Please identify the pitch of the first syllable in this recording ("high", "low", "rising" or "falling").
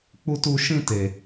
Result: high